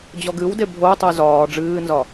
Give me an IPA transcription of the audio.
d͡ʑɔɡɨwde bʱoy̯ tˤəy̯zɒː ɖ͡ʐɨːnzɒ

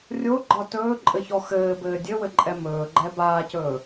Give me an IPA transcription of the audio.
rʲoɡ͡ǃɒ tɵːǃʼɘçɔ xɘːbɘː dʲɘwɘǃʼɛ mɵːɡ͡ǃɛ baːcɵː

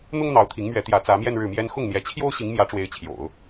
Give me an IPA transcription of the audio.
n̪ʊ˥ŋ n̪ɑ˧˥ʊ̯t̪ʰi˧˥ŋmɥɛ˧˥t̪jä˧˥ t͡sä˧˥mjɛ˥˧n ɻɻ̩˥˩mjɛ˥n xʊ˥˩ŋn̪jɛ˧˥t͡ɕʰjo˥ʊ̯ ɕi˧˥ŋ mjä˧˥ʈ͡ʂwe˧˥ɪ̯t͡ɕʰjo̰˨˩˦ʊ̯

